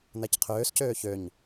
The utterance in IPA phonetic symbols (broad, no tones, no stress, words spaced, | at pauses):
n̪æcqʰøːscøː çøɲ